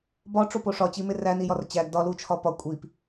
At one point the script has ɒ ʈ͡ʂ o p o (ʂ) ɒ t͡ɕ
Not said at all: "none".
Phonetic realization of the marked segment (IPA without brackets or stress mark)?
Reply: ʂ